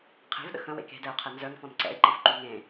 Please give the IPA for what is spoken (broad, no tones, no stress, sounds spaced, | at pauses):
qʰ e̤ v ɗ ə̰ x ə̃ w ḛ k e̤ d ɛ ʊ̯ qʰ ɛ n z œ ŋ f ɔ̃ n ǀ ɛ̰ ɪ̯ ǃ i f ǃ y ŋ ẽ